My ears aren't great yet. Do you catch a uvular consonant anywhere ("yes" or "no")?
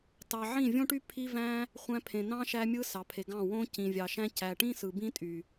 yes